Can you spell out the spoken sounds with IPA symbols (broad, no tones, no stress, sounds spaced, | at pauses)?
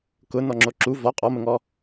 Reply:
k ʊ n ɔ ŋ͡ǁ o ǁ u v ɔ qʼ ɔ m ə ŋ ɔ